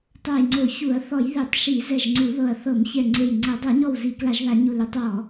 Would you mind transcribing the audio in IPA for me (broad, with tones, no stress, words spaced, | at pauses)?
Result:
tˤa˧˩jŋ͡ǀo˧˩˧ çu˧˩˧ɐ̯ θɔ˧˩˧jðe˧˩˧tˤ ʃi˧˩˧zɛ˧˩ʒŋ͡ǀu˧˩˧ðɤ˧˩ɐ̯ θɤ˧˩˧mçɛ˧˩ŋ͡ǀe˧˩jŋ͡ǀɤ˧˩˧ dˤo˧˩˧ɲɔ˧˩w zi˧˩˧kla˧˩˧ʒða˧˩˧ ɲu˧˩lu˧˩˧tˤwɔ˧˩˧